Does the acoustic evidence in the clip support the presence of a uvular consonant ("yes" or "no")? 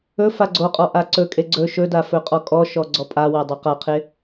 yes